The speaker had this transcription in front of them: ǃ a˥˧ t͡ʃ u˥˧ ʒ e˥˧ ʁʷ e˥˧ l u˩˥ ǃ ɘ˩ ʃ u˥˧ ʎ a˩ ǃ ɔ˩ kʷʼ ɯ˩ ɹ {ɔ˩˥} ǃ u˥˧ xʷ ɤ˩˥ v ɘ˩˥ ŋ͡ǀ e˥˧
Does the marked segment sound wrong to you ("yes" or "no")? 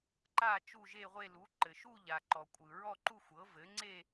yes